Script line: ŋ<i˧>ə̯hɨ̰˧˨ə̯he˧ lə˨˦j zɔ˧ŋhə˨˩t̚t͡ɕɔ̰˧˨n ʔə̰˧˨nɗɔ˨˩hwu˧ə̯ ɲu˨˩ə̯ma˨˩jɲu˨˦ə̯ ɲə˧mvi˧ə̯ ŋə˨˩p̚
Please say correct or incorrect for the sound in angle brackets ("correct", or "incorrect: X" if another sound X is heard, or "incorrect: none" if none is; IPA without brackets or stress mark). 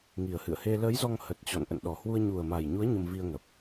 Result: incorrect: i˨˩